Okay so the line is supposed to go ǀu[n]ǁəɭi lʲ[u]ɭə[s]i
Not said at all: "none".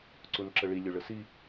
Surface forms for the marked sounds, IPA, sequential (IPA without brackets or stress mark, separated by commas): n, ø, s